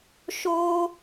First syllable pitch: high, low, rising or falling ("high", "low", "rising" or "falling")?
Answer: high